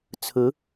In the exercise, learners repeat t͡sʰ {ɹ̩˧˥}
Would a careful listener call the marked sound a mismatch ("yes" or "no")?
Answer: no